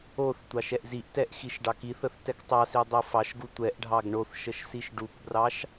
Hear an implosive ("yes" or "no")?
no